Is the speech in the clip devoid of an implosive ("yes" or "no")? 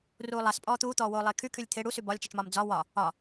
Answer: yes